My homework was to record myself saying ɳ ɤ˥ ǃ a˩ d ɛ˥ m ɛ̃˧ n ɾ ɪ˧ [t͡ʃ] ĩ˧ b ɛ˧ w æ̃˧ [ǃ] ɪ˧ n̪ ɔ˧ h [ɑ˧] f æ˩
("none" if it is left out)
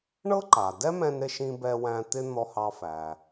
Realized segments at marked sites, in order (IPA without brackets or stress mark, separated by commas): ʃ, t̪, ɑ˧